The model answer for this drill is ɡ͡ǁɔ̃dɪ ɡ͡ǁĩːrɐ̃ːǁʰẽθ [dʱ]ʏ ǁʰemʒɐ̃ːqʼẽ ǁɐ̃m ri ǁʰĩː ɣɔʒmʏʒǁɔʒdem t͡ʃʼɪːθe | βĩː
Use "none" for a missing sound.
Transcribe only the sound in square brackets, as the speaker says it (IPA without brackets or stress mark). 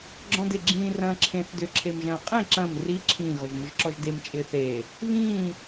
d